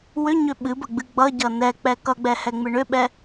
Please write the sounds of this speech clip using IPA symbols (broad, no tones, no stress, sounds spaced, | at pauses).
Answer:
w ʏ ɲ ʏ ɓ ɨ b ə ɡ͡b ɨ ɡ͡b ʌ ɟ ʌ n ɛ k͡p ɛ k ʌ ɡ͡b ɛ h ɛ ŋ͡m ɨ ɳ ʏ ɓ ɛ